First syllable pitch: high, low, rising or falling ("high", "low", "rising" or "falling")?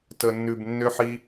low